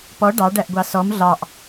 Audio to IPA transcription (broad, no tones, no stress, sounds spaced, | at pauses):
p ɔ ɖ ɑ ɖ æ ʔ ɡʷ ɑ s ɔ m ɮ ɑ ʔ